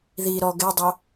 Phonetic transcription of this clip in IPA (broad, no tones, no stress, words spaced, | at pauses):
ðiɾɔ ɡɛdˤɑ